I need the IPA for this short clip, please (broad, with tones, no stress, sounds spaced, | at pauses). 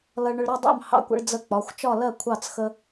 l ʌ˦ ɭ ɳ ʊ˦ ɭ ɾ ʌ˥˨ dˤ ɑ̰˥˨ m h ɑ̰˦ kʷ ə̰˦ ɭ d͡z ə˥˨ k͡p ɒ˩˧˩ xʷ t͡ʃ ɒ˥˨ l ɜ˥˨ kʷʰ ɑ˥˨ t͡s x ə˦